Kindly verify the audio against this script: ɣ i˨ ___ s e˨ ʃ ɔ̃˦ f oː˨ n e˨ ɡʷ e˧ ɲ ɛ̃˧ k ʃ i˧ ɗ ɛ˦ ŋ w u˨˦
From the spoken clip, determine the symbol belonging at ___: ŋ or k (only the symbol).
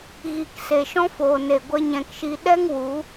k